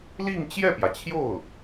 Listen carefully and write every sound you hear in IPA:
l i˥˧ ŋ t͡ɕ j ɛ˥˩ p j ä˩ t͡ɕʰ j o˥˩ ʊ̯

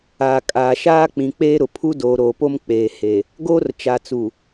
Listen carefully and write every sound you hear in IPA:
aː˨ kʼ aː˨ ʃ aː˦ k͡p ĩ˨ k͡p eː˦ ɾ ʊ˨ pʰ u˦ d oː˨ ɾ oː˨ p o˦ m k͡p eː˨ h e˨ | ɡ oː˦ r t͡ʃ a˨ t͡s u˨

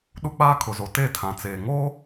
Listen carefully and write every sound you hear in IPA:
ɗ u˦ k͡p aː˦ kʰ ʊ˨ z o˨ t e˦˨ tʰ ã˨ t͡s eː˨ ŋ oː˦

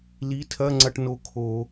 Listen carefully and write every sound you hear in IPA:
l i˨˥ tʰ ɐ˧˥˧ ŋ͡ǀ ɐ˧ ʈ n o˨˥ kʰ o˧˩˧

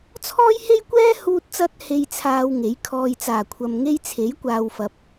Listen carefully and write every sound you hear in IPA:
t͡sʰ ɔː˥ j h e˥ j kʷ ɛː˥ h uː˧ t̚ t͡s ɐ˧ t̚ h e˧ j t͡sʰ aː˧ w ŋ e˨˥ j kʰ ɔː˨ j t͡s aː˨˩ kʷʰ ɐ˨ m ŋ e˥ j t͡sʰ e˨˥ j kʷ aː˨ w f ɐ˨ p̚

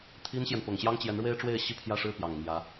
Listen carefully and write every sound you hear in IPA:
t̪ʰ i˥ n ɕ j ɛ˨ n p ʊ˨˩ ŋ ɕ j ɑ˥ ŋ t͡ɕ j ɛ˧˥ n ɻ w e˥ ɪ̯ ʈ͡ʂ w e˥˧ ɪ̯ ɕ i˥˧ pʰ j ä˥˧ ʂ ɻ̩˥˩ p j ɑ˨˩ ŋ m j ä˧˥

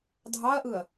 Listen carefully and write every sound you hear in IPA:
dʱ ɑ ɐ̯ ʔ ɯ ɐ̯

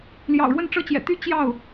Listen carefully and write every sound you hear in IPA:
l j ɑ̰˨˩ ʊ̯ ɻ w ə˥˩ n ʈ͡ʂ ɤ˥ t͡ɕ j ɛ̰˨˩ t̪ y˥˧ t͡ɕ j ɑ˥˩ ʊ̯

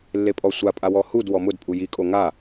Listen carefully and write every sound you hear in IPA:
lː e pʼ ɔ sʷ a pʼ a w ɔ h u d w ɔ m ʊ d pʼ u j i kʼ o ŋ a

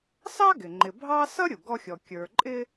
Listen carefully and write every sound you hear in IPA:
s ɑ˥ ɡ ɪ˩ ŋ͡ǃ ɪ˨ bʱ ɑ˥ s ʌ˥ ɾʲ u˩ ɡ ɔ˦ xʲ ɔ˨ kʲ ə˞˨ ǃʼ ɪ˦

